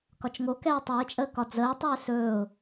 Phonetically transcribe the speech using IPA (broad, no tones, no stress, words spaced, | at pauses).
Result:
kɒt͡ʃŋokɛː tˤɛɪ̯t͡ʃʼəː kɒd͡zəːtˤɵː sɵːʊ̯